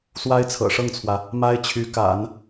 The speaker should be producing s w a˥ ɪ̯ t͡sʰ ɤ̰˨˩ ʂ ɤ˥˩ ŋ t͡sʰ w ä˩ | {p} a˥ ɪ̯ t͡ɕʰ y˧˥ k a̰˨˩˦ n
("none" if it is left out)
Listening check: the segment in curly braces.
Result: m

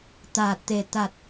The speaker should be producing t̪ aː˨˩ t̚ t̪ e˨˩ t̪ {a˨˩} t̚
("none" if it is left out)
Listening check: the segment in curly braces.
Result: a˨˩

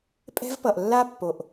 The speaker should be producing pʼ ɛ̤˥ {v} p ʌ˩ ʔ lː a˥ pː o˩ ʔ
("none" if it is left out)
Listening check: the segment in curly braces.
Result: v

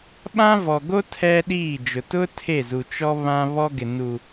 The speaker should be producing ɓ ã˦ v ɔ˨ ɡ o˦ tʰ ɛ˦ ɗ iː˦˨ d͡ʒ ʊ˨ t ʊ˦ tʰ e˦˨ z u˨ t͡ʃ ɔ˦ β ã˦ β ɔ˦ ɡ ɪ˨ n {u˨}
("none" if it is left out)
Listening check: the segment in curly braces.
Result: u˨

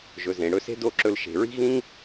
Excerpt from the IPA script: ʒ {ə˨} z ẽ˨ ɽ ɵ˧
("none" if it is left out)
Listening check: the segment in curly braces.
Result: ɵ˨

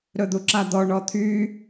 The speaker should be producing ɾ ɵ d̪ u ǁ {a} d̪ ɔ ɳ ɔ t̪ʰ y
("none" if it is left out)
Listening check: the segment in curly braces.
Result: a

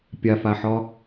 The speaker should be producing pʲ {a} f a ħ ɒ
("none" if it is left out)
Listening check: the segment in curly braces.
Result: a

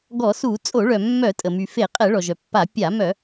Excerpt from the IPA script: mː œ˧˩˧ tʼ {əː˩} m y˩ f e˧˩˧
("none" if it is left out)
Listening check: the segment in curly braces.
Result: ə˩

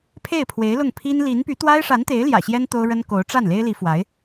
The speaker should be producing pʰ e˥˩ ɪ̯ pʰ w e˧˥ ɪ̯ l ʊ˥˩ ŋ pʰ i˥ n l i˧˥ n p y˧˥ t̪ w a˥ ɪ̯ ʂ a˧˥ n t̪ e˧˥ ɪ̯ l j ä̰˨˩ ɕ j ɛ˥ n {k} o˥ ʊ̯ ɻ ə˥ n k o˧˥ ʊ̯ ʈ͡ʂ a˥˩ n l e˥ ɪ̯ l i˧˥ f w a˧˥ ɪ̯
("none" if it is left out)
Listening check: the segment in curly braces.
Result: t̪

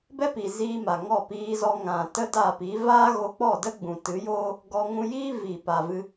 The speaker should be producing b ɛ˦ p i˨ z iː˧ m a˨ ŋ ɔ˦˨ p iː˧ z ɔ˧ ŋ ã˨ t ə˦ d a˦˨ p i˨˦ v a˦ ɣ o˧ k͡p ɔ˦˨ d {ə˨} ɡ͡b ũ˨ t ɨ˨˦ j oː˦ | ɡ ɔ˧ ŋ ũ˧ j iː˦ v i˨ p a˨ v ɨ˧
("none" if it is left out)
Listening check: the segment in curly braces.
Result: ə˦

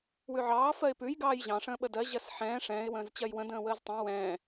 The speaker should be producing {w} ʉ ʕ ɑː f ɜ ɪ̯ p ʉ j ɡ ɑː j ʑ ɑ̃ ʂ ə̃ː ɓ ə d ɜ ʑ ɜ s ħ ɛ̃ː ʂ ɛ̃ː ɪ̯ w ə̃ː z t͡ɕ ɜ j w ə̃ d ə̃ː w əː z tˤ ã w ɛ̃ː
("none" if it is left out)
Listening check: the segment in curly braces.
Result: w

